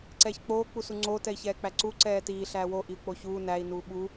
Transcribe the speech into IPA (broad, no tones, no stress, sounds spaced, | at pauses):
ǀ ɛː ç k͡p oː k͡p u s u ŋ͡ǀ oː t ɛ i̯ ç ɛː k͡p æ ǀ u ǀ ɛː t iː ɬ æː w o ʔ i u̯ k͡p o ç uː n æ i̯ n uː ɓ u